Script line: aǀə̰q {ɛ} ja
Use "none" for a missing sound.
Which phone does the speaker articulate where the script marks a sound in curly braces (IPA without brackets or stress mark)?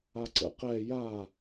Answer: ɛ